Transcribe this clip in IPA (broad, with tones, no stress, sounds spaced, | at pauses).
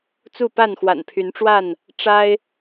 t͡s u˥˨ p a˥˨ n x w a̰˨˩ n pʰ y˨˦ n ʈ͡ʂ w a˥˨ n | ʈ͡ʂ a˦ ɪ̯